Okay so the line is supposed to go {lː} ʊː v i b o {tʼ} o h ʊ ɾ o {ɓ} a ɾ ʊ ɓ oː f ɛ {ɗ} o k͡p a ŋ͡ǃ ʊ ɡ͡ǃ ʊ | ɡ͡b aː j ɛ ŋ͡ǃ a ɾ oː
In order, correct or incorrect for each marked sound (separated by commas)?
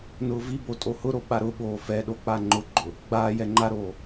incorrect, correct, correct, correct